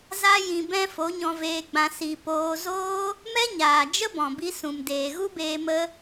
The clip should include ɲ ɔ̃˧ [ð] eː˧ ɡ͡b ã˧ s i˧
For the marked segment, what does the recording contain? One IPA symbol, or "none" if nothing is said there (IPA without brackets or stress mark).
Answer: v